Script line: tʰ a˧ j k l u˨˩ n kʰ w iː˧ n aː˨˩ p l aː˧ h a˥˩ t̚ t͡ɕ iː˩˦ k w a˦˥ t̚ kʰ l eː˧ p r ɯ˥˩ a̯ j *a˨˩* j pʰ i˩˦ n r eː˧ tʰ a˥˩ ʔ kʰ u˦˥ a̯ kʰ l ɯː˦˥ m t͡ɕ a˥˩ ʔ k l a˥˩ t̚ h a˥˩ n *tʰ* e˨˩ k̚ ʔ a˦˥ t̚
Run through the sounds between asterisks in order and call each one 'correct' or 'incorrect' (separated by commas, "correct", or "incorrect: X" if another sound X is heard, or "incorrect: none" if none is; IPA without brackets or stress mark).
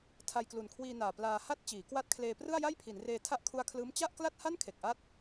incorrect: a˥˩, incorrect: kʰ